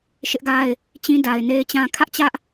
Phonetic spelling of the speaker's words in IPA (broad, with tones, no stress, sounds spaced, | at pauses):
ʃ ɪ˦ ʔ ɡ a˦ ɪ̯ | t͡ɕ ĩ˦ d a˨ ɪ̯ n e˦ ɪ̯ t͡ɕ ã˦ kʰ ä˦ ʔ t͡ɕ ä˦ ʔ